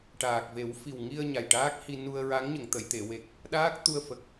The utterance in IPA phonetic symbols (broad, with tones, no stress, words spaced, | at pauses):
ʈaː˨˩k̚ ve˨˩˦wfi˨˩wŋi˧ə̯ ɲa˨˩jʈaː˦˥k̚hi˧ nu˧ə̯ɹa˧˥ŋ ɲə˨˩˨ŋt̪ə˨˩˨jt̪e˨˩˨ we˨˩k̚ | ɗaː˦˥k̚t̪u˧ə̯fə˨˩k̚